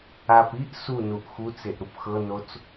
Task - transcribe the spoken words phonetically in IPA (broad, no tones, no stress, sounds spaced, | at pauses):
a p i ʔ s u n u ʔ x u t͡s e ʔ ɾ u p x ɤ n o t͡s